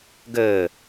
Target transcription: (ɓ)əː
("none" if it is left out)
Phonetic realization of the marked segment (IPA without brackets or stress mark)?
ɡ